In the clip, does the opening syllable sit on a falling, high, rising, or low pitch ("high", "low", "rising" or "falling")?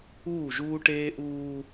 falling